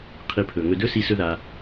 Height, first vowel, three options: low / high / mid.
high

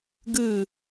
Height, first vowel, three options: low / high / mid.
high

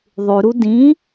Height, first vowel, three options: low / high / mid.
high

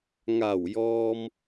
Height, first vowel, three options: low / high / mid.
low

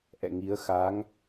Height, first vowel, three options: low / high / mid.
mid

